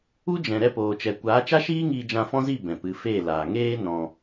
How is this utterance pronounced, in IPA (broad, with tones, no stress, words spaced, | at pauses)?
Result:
u˦d͡ʒɛ̃˨ ɾɛ˧poː˨t͡ʃɛ˨ kʷaː˨˦t͡ʃa˦ʃiː˦ ŋiː˧d͡ʒã˧ fɔ̃˦zi˦˨ bɛ̃˨pɨ˨˦ feː˦˨laː˨ ŋeː˦ nɔ̃˧